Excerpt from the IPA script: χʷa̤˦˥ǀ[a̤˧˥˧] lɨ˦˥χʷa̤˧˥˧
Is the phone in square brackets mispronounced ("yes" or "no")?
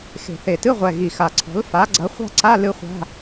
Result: yes